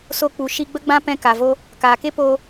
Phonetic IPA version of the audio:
so˧k͡pu˨ ʃi˧ɡ͡bə˦ɡ͡bã˦ pɛ̃˧ka˨vo˧ | kaː˨ke˦poː˧

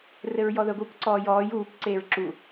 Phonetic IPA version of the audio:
rɘɹjɔðəɡʷəːkʷ ǀɔːjɔːj uːkʷ ǀeːɹǁu

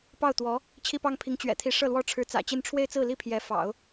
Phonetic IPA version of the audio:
pɑ˥˩ʊ̯t̪wɔ˧˥ | t͡ɕʰi˥pɑ˥ŋpʰi˧˥ŋ t͡ɕɥɛ̰˨˩t̪ʰi˧˥ ʂɤ˥˩lwɔ˥ʈ͡ʂʰɻ̩˧˥ t͡sä̰˨˩t͡ɕi˥˧n ʈ͡ʂʰwe˥˧ɪ̯t͡sɹ̩˥˩li˥ pʰjɛ˧˥fɑ̰˨˩˦ʊ̯

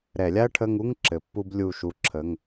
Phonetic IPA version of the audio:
ɾɛ˧˩˧lʲa˥ɐ̯ʈʰə˧˥˧ŋu˧˥˧ŋ ǁɘ˨˥pːu˥b lʲu˦˨ʃu˦˨ǁʰə˧˥˧ŋ

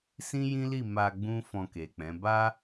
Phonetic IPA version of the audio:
sĩ˦jĩ˦li˦˨ ma˧ ɡ͡bũ˦ fɔ̃˧ke˨k͡pɛ̃˨˦ ba˦

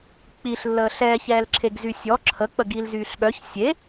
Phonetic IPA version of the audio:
k͡piɬlːəː ɬɛːçɛːlǁʰeɡ zysʲɔ ǁʰək͡pə ɡilzyːɬɠœç sʲe

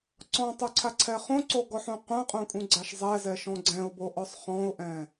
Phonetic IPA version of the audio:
ǀɔ̃tˤoǀʰaǀʰɛ χõǀoɡɔħũ qʷãqʼõkʼũɡ͡ǀaʃ zˤɛzɛʃɔ̃ ɡ͡ǀɛ̃ʊ̯boʔɔsˤ χɔ̃ʊ̯ʔɛ̃

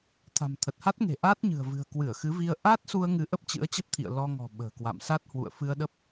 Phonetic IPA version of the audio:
t̪ʰa̤˨˩mt̪ʰə˨˩t̚ha˦˥t̚ŋe̤˨˩ ʔaː˦˥t̚ɲɨ̤˨˩ə̯vɨ̤˨˩ə̯ kwɨ˧˩ə̯ xɨ˨˦vi˧ə̯ ʔaː˦˥t̚su˧ə̯ŋɨ˨˦ ʔə˦˥p̚t͡ɕɨ̰˧˥ə̯t͡ɕə˦˥p̚t̪ʰḭ˧˨ə̯ lɔ˧ŋɔ̤˨˩ ɓə̤ː˨˩kwa̰˧˨msa˦˥t̚ hwṵ˧˨ə̯fɨ˧ə̯ɗə˦˥p̚

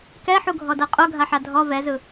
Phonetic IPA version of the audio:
kɛħuɡʱɔdɤ qʼoɡʱaħa dʱɔ vɛzɯ

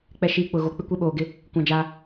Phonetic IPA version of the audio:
k͡pɛ˨ ʃiː˨ k͡pʊ˨ ɣo˨k͡pɪ˦kʷɛ˦ ɓoː˨ɡɪ˦ | kʷã˦d͡ʒa˦

